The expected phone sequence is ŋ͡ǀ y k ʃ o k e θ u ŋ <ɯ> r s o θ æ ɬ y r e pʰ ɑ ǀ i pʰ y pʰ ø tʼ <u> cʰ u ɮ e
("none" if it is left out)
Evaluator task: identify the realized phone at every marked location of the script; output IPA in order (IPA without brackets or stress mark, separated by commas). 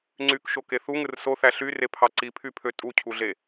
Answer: ɯ, u